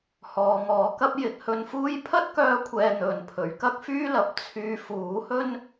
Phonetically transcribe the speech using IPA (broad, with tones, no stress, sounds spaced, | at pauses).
h ɔː˨˧ ŋ ɔː˨˥ k ɐ˥ p̚ j ɪ˨ k̚ h ɵ˧ n f uː˥ j pʰ ɐ˥ t̚ k œː˧ kʷʰ ɛː˨ n̪ ɵ˨ n pʰ ɵ˨˥ ɥ k ɐ˥ k̚ f yː˥ l ɐ˨ p̚ t͡sʰ yː˧ f uː˨˥ h ɵ˥ n